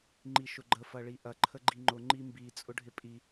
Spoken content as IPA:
ŋ͡ǃiʃʊɡ͡ǃə fɐɭiʔɐ ǃʰəɡ͡ǃiŋ͡ǃʊ ŋ͡ǃimbi t͡sʼʊɖʱɪpʼi

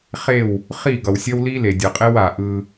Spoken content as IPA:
χe˦˨w | χi˦˨ɡʌ˨wsʲʌ˦w li˦le˨dʲʌ˨qʼe˦w a˨ʔɯ˦

